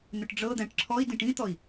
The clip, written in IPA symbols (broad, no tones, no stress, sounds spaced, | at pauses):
n̪ ʏ ʈ ɖ͡ʐ ɤ d̪ æ̃ ʈ ǁʰ ɔ i̯ d ĩ ʈ ĩ t̪ ɔ i̯